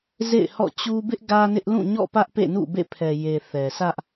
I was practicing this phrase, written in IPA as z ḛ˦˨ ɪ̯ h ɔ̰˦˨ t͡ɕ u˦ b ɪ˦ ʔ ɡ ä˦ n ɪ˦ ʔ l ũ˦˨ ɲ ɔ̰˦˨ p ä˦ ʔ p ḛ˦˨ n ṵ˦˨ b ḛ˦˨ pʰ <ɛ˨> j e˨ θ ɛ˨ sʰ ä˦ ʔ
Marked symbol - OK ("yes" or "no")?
yes